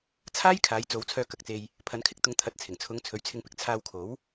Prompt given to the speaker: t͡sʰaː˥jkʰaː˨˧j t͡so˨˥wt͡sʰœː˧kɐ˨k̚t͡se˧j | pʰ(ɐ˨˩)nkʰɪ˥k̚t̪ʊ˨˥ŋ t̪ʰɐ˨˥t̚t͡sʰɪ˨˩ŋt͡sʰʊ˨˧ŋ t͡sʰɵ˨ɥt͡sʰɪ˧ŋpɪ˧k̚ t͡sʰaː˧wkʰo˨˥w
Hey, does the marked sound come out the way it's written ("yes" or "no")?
no